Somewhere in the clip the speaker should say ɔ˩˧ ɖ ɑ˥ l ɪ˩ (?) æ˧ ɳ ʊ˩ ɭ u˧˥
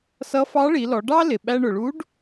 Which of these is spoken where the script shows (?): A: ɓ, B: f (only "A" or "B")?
A